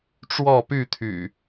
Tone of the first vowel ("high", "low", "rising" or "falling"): falling